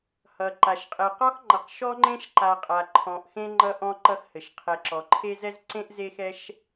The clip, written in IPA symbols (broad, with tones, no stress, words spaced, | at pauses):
hʌ˩ ǃa˩ʃqʼɛ˨qɔ˥xŋ͡ǃʌ˨q ʃɔ˥ŋ͡ǃẽ˥ʃǃa˨qʼa˩ ǃʰɔ̃˨ʔxẽ˦ ŋ͡ǃʌ˦ʔɔ̃˦ ǃʌ˦xhɘ˩ʃ qʰɛ˨ǁɔ˩ǃʰe˥zɛ˥z ǀẽ˥ʔze˦xɛ˦ʃ